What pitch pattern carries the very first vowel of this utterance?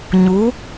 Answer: rising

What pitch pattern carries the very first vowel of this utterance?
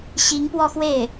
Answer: rising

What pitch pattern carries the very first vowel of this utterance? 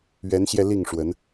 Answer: rising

